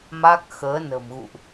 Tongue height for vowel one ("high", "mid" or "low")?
low